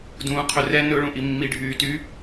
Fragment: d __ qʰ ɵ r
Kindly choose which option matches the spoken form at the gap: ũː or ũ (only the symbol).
ũː